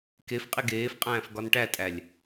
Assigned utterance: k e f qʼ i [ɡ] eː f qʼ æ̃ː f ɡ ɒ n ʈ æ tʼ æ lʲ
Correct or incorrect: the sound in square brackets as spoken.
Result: correct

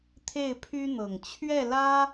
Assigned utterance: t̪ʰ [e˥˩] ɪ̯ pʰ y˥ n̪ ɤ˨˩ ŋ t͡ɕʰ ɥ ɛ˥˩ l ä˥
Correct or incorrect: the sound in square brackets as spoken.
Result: correct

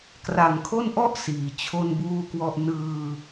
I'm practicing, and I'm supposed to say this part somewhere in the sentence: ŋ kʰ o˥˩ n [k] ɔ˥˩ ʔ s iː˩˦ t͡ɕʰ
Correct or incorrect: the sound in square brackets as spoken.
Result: incorrect: ʔ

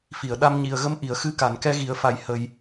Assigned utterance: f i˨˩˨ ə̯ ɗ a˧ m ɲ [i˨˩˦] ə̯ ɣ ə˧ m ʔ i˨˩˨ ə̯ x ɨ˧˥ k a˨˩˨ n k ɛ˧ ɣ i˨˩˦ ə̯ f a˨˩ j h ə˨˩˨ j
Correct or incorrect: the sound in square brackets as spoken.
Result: incorrect: i˨˩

